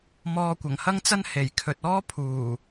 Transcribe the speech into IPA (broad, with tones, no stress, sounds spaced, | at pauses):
m ɔː˧ kʷ ɐ˨˩ ŋ h ɐ˥ ŋ t͡s ɐ˥ n h e˨˩ j kʰ ɵ˨ t̚ ɔː˥ pʰ uː˨˩